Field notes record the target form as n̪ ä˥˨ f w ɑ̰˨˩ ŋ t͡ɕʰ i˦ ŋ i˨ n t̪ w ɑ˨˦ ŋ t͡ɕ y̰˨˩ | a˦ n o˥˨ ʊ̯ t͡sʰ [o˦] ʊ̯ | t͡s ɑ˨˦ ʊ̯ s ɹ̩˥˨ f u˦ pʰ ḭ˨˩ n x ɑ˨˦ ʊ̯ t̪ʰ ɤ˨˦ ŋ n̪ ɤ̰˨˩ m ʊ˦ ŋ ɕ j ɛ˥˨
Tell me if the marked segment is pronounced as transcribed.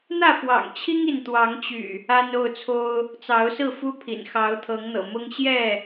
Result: yes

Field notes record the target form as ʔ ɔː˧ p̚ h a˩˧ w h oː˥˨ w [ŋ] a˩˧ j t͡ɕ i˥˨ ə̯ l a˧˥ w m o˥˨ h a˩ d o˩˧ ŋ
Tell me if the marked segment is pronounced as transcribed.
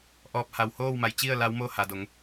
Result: no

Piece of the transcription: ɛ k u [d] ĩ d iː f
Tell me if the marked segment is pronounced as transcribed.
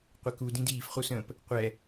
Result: yes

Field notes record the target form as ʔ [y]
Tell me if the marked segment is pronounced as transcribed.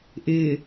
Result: no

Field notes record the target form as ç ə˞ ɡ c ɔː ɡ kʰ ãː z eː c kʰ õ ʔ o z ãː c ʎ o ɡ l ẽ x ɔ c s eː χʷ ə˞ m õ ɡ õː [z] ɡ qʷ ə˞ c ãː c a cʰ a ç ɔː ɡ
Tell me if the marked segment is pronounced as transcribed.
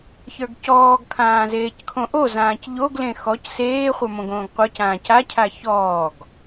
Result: no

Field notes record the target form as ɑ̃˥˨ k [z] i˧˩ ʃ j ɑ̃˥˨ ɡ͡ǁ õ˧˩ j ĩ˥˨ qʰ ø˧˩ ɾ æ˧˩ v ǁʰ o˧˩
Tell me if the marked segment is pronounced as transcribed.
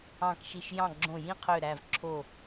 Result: no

